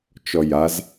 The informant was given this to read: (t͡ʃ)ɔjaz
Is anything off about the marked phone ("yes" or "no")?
no